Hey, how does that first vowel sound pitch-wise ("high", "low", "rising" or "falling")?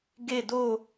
falling